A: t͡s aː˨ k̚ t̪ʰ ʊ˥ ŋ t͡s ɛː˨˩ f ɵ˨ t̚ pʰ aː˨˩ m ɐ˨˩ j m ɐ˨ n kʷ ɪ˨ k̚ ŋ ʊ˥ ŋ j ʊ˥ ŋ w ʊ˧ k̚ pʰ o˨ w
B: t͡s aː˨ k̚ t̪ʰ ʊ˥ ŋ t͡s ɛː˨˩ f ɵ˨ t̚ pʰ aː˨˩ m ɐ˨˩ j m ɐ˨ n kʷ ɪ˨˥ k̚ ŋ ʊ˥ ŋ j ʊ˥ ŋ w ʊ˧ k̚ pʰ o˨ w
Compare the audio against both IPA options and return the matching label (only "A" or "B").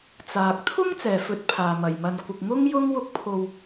A